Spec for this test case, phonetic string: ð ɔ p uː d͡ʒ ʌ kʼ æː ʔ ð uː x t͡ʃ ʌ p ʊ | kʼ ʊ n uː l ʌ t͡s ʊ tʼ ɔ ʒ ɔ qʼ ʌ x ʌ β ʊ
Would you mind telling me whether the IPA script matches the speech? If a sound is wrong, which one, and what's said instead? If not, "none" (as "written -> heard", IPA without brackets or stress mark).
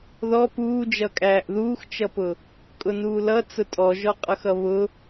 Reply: none